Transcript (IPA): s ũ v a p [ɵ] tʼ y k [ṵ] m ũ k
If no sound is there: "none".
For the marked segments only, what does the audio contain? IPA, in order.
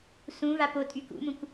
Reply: o, ṵ

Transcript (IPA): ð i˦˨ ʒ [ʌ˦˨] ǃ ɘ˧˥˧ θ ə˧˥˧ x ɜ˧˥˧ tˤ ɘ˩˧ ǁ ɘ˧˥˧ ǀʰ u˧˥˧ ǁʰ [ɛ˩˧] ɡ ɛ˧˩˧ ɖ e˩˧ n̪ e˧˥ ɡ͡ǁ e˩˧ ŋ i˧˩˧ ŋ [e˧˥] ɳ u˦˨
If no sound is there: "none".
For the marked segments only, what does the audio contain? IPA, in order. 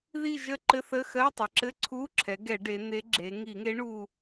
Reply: ə˦˨, ɛ˩˧, e˧˥

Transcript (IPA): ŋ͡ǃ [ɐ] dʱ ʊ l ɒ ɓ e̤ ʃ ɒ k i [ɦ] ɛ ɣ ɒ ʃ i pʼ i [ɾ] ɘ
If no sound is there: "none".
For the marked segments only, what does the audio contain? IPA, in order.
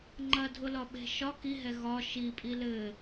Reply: ɐ, ɦ, l

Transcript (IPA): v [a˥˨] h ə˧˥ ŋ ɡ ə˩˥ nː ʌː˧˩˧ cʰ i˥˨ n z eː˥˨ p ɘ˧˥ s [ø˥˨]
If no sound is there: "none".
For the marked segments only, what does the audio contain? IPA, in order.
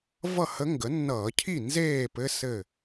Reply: ʌ˥˨, ɘ˥˨

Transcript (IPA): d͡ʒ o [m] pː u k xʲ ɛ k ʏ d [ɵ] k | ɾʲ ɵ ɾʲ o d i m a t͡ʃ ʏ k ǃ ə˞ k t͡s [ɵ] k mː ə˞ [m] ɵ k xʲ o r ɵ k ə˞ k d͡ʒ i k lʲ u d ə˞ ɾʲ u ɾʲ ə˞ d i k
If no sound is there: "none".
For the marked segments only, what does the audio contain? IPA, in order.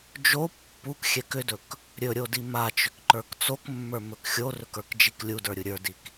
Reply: none, ɵ, o, m

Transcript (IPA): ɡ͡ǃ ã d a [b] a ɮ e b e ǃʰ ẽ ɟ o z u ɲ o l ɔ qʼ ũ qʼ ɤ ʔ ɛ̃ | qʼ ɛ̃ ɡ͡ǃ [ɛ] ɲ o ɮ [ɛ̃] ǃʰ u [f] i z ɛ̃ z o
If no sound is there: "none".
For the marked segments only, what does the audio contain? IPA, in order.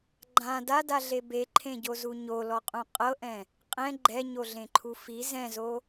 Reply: d, ɛ, ẽ, f

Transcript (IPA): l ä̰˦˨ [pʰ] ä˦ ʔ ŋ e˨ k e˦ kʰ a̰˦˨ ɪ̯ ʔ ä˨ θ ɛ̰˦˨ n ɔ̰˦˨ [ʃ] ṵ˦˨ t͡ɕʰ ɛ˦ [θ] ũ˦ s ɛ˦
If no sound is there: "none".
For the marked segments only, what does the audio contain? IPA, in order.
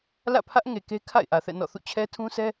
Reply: pʰ, θ, tʰ

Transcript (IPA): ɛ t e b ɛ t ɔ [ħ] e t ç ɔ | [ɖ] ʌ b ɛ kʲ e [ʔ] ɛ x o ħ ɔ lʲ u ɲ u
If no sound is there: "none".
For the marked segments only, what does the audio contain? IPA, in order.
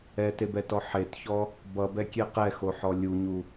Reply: ħ, b, q

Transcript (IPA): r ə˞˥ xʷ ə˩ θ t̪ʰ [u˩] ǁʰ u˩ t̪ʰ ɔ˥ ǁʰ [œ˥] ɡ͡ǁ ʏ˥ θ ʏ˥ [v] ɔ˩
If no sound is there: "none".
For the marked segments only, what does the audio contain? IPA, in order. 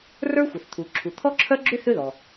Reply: u˩, œ˥, ð

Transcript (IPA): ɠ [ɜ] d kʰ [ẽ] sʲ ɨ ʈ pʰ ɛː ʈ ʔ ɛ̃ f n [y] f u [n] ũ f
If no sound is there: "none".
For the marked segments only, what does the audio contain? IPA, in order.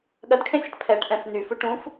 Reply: ɜ, ẽ, y, ʈ

